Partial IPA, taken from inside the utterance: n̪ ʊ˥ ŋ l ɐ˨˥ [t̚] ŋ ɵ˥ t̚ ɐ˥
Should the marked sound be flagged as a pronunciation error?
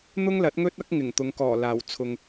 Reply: no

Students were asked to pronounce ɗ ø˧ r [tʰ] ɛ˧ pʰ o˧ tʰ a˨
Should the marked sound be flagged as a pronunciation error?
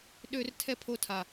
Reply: no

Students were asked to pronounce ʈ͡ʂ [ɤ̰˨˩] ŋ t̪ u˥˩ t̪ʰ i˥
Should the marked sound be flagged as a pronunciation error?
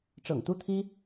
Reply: no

